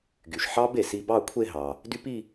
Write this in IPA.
ɡy˩ʃ ħɑ˦˥b e˩si˧ bɑ˥˧kʷʰe˥˧ɦɑ˩ | dy˦˥pi˥˧

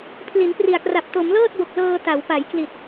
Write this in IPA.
pʰli˩˦npri˨˩a̯kra˨˩p̚ to˩˦mlɤː˥˩t̚bo˨˩k̚ lɤː˧ta˩˦wpa˩˦jkli˨˩t̚

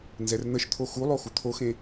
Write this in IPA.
nzɛrn̪əʃt̪ʰo xulˠo xut̪ʰoxẽ

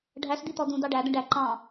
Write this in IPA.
ɖʱæsd̪it̪ɔ d̪ũd̪ɑ ɖæd̪ə̃ ɖæ ǃɑ̃

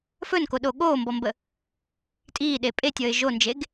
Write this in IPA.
fɵnkoɗo ɠoːmbɔmbə | tʼiːɗe pʼetʲəːɪ̯ ʒond͡ʒeɡ

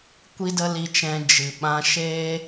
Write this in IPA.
kʷi˦də˦li˧t͡ʃɛ̃˧ d͡ʒɨ˨ɓã˧ ʃeː˦

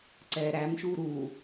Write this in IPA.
ǀɛːɾæmʃuː ɾu

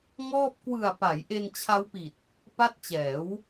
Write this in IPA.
ŋɔː˥˩p̚ kwɯ˨˩a̯ pa˩˦jʔe˧nt͡ɕʰa˦˥wpi˨˩t̚ | pa˦˥t̚t͡ɕɛː˩˦w

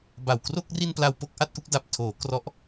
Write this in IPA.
ba˨˩wkro˥˩k̚ ri˧n pla˧wpo˥˩k̚ʔa˥˩t̚ʔu˥˩k̚ da˨˩p̚tʰoː˩˦ krɔ˦˥ʔ

